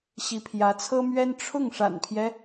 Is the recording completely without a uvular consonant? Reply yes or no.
yes